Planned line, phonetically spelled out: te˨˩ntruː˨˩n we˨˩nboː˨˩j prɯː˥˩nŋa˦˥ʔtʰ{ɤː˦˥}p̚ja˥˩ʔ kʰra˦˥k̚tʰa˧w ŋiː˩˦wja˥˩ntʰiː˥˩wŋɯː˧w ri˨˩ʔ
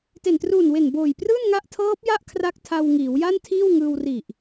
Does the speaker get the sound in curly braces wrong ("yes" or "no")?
no